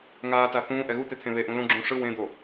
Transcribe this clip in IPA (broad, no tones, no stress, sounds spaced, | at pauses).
ŋ aː t a θ ũː ʔ ɛ ɣ u t̪ e t̪ʰ ẽ β e ʔ ũ l õ ɡ͡ǁ ũː ʂ ɯ w ẽ d̪ o